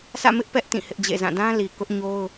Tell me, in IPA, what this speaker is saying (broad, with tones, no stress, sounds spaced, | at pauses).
s ä̰˦˨ m ɪ˦ ʔ p ɛ˦ ʔ t ĩ˦˨ h ɪ˦ ʔ d͡ʑ ḛ˦˨ z ã˦˨ d ã˦ l i˨ k ʊ˦ ʔ ɲ o˦ ʊ̯